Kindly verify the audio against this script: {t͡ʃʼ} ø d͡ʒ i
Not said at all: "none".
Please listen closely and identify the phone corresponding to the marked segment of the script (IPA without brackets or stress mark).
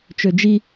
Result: t͡ʃ